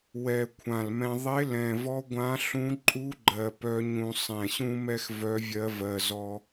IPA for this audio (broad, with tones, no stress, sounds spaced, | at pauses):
w ɛ˨˩ kʷʰ ã˨˩ l m ɛ̃˧ ðˤ e˧˥ l ɛ̃˨˩ v ɔ˧˥ ɡʷ ã˧˥ ɬ ũ˧˥ ǃʼ u˧˥ ɡ͡ǃ ɜ˨˩ p œ˧˥ ɲ ũ˧ sˤ ɛ̃˨˩ ɕ ũ˧ m ɛ˧ x v œ˧˥ vʲ ɜ˧˥ v ɜ˧ z ɔ˧